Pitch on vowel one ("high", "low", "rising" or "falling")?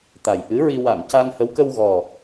low